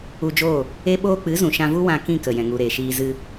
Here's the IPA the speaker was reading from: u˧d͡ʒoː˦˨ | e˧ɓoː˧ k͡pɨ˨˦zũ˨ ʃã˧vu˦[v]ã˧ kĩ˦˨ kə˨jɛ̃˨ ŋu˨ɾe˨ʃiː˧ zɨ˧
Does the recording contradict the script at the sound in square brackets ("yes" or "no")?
yes